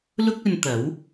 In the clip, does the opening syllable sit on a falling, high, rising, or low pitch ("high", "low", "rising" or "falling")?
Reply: high